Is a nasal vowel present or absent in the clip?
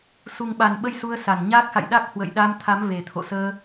absent